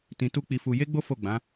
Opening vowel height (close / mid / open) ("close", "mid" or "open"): close